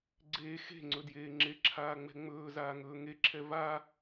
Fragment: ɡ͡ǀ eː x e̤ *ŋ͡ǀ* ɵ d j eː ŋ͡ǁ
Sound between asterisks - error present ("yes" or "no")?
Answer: no